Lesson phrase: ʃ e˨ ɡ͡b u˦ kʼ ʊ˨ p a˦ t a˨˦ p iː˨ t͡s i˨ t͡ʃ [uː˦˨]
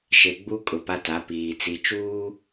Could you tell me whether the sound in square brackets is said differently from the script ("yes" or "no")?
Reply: yes